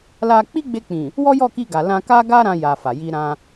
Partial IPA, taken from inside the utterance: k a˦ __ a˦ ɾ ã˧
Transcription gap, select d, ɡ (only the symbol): ɡ